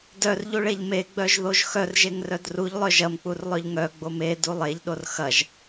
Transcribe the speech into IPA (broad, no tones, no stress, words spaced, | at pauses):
dœrʎuɭeʎ meɡ͡bœʒðoʒ xœrʒeŋrœd ruʎlˠœ ʒɐmk͡purlˠœʎ ŋœɡ͡bom edu lˠeʎɗor xɐʒ